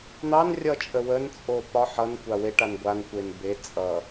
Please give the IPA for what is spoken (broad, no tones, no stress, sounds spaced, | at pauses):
n̪ ɑ n rʲ ʌ t͡ʃʼ ə w ə n t͡sʼ o p ɒ ħ ʌ n kʷ a w e ʈ a n ɡʷ a n kʷ e n b e t͡sʼ ʌ